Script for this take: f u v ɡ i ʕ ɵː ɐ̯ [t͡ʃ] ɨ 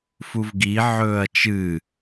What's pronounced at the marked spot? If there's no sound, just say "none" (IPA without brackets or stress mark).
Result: t͡ʃ